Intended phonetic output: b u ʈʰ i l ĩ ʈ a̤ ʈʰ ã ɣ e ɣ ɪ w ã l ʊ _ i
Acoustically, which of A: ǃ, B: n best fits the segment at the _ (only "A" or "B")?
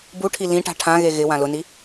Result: B